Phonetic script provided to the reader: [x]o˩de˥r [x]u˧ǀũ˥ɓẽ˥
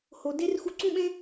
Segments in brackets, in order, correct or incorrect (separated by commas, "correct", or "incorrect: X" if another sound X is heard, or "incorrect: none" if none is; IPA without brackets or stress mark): incorrect: h, correct